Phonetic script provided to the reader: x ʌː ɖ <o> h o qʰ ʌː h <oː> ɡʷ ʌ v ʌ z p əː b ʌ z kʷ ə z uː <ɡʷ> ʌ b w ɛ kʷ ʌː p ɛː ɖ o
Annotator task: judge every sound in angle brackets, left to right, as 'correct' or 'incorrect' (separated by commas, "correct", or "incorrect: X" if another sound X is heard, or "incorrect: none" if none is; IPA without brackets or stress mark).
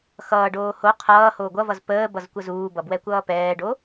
incorrect: oː, correct, incorrect: b